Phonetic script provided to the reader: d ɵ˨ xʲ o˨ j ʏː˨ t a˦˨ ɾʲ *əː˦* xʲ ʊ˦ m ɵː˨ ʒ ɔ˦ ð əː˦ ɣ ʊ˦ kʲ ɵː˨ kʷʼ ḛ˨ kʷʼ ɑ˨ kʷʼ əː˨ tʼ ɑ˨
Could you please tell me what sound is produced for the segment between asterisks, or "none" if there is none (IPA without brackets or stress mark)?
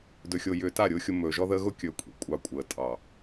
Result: ʊː˦